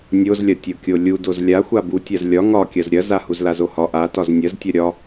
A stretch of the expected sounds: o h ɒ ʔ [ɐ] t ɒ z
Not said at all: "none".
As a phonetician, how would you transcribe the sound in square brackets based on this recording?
a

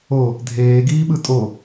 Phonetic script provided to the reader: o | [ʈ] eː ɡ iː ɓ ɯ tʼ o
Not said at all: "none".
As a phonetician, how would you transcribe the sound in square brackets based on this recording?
dʱ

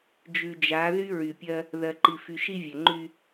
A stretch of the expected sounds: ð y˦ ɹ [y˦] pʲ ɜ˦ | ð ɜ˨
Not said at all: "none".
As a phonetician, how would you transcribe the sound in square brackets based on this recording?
y˨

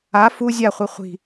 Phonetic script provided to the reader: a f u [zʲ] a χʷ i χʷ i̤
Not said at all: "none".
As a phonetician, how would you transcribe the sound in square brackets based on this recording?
zʲ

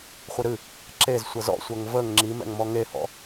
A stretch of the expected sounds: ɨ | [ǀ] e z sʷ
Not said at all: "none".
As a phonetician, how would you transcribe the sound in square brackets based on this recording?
ǁ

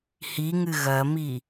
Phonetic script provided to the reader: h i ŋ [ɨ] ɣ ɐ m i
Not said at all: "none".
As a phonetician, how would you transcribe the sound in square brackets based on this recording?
ɨ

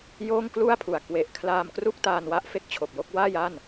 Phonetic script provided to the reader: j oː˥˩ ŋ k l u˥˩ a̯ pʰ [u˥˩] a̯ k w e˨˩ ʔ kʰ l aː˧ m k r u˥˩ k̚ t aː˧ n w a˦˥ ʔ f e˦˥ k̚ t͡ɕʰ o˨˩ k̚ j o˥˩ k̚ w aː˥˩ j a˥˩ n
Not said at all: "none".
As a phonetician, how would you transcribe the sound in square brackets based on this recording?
u˩˦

